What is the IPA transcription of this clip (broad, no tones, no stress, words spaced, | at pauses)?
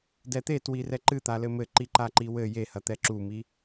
dɛt̪etwi rɛǃɨt̪alɘ mɘǃi ǃaǃiwɘ jehɐt̪ɛ ǁumi